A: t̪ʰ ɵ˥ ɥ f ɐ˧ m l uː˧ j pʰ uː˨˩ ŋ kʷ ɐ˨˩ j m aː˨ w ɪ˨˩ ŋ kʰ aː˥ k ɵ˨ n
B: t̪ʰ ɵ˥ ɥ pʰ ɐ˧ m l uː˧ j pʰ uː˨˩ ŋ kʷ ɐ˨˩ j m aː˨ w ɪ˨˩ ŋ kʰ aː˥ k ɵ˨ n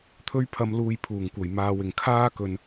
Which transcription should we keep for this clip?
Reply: B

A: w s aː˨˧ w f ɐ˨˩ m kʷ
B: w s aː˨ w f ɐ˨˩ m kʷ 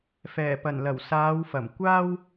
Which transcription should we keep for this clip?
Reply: A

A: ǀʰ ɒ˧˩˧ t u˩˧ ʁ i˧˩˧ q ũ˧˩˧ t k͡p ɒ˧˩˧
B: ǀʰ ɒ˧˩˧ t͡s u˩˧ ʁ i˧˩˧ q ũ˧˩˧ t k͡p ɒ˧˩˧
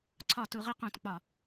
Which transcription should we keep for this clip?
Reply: A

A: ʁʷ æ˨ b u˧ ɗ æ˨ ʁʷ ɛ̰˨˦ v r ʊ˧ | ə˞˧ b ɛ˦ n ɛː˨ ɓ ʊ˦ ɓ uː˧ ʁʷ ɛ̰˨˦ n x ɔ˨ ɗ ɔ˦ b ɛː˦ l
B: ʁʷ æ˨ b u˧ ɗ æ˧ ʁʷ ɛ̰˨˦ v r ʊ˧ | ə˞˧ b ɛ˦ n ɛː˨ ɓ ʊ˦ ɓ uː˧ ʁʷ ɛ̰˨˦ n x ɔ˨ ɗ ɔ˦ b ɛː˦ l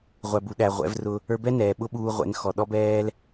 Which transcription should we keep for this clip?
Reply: A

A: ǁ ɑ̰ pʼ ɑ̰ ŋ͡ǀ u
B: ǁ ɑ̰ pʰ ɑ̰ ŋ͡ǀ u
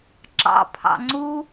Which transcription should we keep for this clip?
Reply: B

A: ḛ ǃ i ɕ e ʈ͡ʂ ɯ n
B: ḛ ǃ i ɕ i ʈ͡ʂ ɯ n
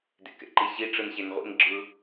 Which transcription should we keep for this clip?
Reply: B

